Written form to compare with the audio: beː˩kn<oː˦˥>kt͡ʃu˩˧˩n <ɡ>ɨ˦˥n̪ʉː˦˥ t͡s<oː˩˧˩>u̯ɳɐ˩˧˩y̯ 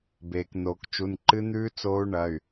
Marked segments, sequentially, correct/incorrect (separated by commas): incorrect, incorrect, incorrect